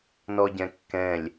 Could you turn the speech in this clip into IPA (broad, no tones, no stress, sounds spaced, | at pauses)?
n ɔ ɟ ɛ̃ kː ɛ̃ lʲ